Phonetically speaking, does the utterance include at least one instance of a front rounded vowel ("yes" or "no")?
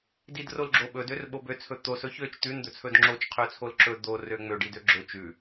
yes